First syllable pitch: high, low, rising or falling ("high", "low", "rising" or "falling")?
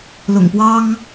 low